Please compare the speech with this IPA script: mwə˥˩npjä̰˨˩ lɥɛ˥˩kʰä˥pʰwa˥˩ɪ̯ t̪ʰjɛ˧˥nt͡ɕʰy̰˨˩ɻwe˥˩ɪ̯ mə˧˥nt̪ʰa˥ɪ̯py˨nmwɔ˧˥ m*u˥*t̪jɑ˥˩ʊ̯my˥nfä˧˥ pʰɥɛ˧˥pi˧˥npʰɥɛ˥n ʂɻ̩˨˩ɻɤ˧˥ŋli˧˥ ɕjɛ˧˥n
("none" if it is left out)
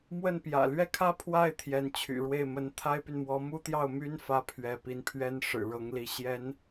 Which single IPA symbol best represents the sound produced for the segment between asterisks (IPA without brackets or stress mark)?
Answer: u˥